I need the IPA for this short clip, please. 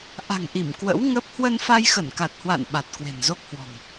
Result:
ʔ a̤˨˩ ŋ ʔ i˧˩ m k w ə̰˧˥ w ŋ ə˦˥ p̚ h w ə˧ n f a˧ j x ə˧˩ n k a˨˩ t̚ h w a̰˧˨ n ɓ a˨˩ t̚ k w e̤˨˩ n z o˦˥ k̚ h w ɔ̤˨˩ ŋ

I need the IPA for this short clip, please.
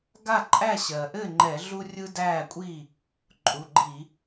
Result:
ɡ a˥˩ ǃʼ æ˥˩ ɕ ɜ˩ ʔ ɘ˥˩ ŋ͡ǃ ɛ˧˩˧ ɮ u˦ rʲ ɯ˦ d æː˥˩ kʷʼ i˥˩ | ǃʼ u˩˧˩ ɡ͡ǃ i˧˩˧

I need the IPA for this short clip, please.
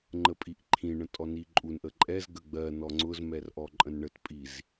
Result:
ŋ͡ǃ ə pʼ i ʔ ǃʰ ĩ ɳ ə̃ tʼ ɔ n i ǃʼ u n ʔ ə ǃʼ ɛ z ɡ ə ɡ͡b ɜ n ɔ ŋ͡ǀ ʊ z m ɛ r ʔ ɔ ǃʼ ə̃ n ɳ ə t pʼ i z

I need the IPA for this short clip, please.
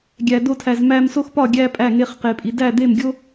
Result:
ɡʲ æ˨ d o˧ tʰ æ˨ z m æ˧ m s o˦ x p ɒ˦˨ ɡʲ æ˧ pʼ æ˦˨ ŋ e˧ χ q e˨ pʼ i˨ d æ˦˨ d̪ e˦˨ m ɡʲ o˦

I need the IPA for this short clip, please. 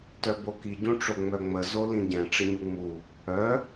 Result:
t œ b o k i ɟ ũ ʈ͡ʂ o ŋ͡m œ ŋ͡m ə z o l ĩ ɟ ɛ̃ ʈ͡ʂ ə ɲ u ŋ͡m u | œ

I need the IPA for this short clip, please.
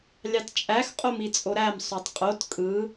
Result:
lʲ ɑ t t͡ʃʼ æ x qʼ o m i t͡sʼ o ɾ æ m sˤ o tˤ qʼ o t kʼ ɯ

